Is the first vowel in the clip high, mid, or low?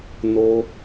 mid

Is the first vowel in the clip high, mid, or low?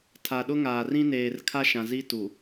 low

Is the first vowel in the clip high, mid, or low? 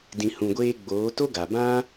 high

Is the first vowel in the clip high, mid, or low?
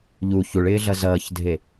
high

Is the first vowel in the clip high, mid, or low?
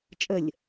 mid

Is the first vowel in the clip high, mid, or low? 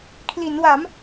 high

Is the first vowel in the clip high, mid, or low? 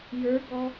mid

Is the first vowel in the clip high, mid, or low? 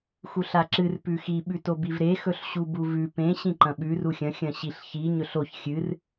high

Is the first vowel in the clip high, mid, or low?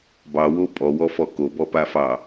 low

